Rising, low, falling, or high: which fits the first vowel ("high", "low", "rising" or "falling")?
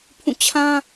falling